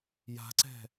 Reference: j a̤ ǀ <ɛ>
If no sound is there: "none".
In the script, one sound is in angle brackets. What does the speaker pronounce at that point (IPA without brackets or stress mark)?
ɛ̤